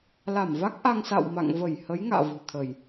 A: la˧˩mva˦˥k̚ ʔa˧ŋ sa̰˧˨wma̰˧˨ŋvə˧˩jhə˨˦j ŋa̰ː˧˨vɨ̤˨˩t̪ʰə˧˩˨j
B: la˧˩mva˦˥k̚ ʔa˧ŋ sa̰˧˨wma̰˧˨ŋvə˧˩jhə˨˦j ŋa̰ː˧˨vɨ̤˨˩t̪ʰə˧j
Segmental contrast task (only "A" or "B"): A